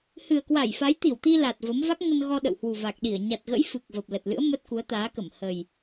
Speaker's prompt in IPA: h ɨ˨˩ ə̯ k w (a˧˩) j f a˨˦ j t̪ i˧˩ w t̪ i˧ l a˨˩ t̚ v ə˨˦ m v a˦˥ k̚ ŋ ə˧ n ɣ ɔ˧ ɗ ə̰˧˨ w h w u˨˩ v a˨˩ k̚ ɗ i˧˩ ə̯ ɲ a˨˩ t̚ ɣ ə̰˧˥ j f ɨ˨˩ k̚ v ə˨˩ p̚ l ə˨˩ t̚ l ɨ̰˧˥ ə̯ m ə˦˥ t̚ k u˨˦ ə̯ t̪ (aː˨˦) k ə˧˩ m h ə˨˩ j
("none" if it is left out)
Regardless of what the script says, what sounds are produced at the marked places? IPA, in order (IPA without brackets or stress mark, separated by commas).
a˧˩, aː˨˦